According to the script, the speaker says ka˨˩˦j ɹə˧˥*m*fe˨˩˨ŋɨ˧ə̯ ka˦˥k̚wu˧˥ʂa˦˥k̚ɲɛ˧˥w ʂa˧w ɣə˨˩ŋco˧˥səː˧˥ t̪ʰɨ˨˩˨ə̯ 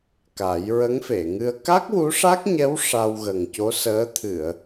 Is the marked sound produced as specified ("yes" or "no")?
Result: no